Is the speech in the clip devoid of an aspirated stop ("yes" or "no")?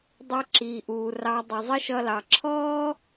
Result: no